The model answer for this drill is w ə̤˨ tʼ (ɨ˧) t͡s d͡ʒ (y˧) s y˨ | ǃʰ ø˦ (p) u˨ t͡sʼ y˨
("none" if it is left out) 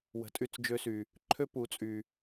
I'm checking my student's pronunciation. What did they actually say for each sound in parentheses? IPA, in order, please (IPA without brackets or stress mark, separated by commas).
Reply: y˧, ø˧, p